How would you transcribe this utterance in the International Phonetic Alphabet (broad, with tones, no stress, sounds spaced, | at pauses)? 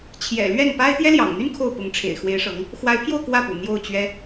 t͡ɕʰ j ɛ̰˨˩ l ɥ ɛ˥˩ n p a˥ ɪ̯ t̪ j ɛ˥ l j ɑ̰˨˩ ŋ n̪ y˥ n kʰ o˥˩ ʊ̯ p ʊ˧˥ ŋ ʈ͡ʂʰ ḛ˨˩ ɪ̯ x w e˧˥ ɪ̯ ʂ ɤ˧˥ ŋ | x w a˧˥ ɪ̯ pʰ j o˥˧ ʊ̯ k w ä˥˩ p ṵ˨˩ n̪ j o˥˩ ʊ̯ t͡ɕ ɥ ɛ˥